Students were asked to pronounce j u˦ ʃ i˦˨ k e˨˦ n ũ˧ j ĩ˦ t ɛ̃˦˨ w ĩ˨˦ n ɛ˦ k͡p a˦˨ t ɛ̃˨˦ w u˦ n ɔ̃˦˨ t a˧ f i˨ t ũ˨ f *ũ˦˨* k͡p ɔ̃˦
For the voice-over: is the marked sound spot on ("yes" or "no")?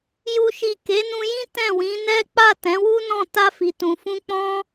no